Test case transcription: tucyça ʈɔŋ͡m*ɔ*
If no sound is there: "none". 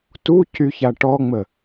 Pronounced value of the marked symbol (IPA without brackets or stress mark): ə